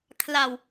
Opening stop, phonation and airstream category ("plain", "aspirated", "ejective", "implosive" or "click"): aspirated